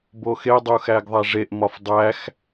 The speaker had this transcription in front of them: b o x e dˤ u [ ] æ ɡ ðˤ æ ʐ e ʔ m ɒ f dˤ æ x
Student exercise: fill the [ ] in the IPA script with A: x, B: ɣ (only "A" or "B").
A